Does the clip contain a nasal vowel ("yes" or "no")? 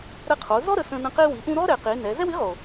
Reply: yes